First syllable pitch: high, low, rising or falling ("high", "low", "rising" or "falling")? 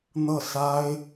falling